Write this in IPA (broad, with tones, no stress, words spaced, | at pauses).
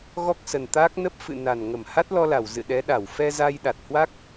ɣɔ˦˥k̚sə˨˩n t̪aː˦˥k̚ nə˦˥p̚ fɨ̰˧˨ na˨˩n ŋə˧˩mha˦˥t̚lɔ˧la˧˩w zɨ̰˧˨ɗɛ˨˦ɗa˧˩w fɛ˧za˧jɗa˨˩t̚hwa˦˥k̚